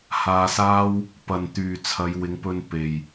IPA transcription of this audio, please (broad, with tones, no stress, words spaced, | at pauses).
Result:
haː˧saː˥w | pɐ˨nt̪yː˨ t͡sʰɐ˨˧jwɪ˨˧ŋpɵ˧n pe˨j